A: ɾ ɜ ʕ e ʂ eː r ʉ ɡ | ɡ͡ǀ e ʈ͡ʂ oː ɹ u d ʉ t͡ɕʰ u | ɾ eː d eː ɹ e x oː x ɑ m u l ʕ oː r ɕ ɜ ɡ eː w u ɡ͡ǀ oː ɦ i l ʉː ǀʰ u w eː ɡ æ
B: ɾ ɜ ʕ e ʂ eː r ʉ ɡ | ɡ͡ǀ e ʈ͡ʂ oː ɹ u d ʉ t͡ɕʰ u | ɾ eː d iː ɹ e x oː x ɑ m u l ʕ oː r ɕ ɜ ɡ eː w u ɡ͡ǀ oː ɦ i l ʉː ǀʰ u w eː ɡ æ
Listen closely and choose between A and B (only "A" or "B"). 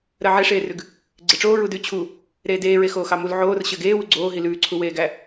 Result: A